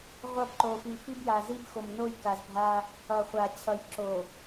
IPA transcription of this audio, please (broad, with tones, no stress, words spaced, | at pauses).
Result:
ʁʷʌ˦˨bǃo˨ fi˨ fi˦bja˨zi˦b xo˨mno˦˨jka˨zbʱa˦ | ʌ˨χʷa˨ t͡ɕʰʌ˨jǁo˨